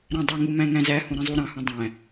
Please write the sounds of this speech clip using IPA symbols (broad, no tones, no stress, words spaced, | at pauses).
ɾæ̃dˤøŋu mæ̃ŋæ̃zæhũ ɾĩzˤuɾɑ̃hũ dˤæ̃